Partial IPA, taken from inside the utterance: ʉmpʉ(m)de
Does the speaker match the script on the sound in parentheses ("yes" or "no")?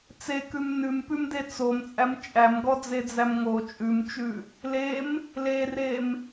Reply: yes